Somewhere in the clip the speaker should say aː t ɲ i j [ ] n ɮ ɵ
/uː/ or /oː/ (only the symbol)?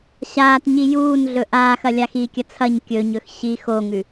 uː